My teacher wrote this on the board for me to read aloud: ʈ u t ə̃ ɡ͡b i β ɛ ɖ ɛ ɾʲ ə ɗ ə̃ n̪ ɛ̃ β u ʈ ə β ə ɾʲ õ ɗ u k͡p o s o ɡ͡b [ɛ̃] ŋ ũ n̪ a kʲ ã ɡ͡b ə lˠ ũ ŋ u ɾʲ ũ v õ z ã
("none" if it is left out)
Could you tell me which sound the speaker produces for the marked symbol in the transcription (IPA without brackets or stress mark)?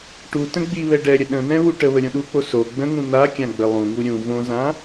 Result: ə̃